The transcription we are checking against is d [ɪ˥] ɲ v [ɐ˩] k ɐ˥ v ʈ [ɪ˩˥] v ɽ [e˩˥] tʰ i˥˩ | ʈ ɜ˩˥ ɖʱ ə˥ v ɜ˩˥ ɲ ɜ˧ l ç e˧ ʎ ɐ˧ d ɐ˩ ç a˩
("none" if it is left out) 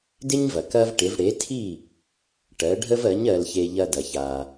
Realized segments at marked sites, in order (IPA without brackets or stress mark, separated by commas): ɪ˥, ɐ˩, ɪ˩˥, e˩˥